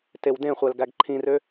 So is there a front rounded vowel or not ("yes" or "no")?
yes